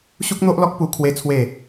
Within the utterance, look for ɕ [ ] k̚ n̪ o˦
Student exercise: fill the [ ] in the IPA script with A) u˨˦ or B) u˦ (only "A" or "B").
B